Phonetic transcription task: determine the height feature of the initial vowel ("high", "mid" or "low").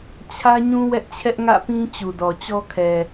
low